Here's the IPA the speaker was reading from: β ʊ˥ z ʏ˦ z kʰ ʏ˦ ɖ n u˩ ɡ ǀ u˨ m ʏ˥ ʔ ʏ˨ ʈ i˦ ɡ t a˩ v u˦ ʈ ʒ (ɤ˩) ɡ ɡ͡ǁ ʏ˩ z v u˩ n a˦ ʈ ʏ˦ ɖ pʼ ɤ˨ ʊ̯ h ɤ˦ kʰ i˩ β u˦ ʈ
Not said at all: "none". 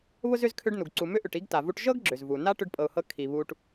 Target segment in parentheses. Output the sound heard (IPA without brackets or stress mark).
ɤ˥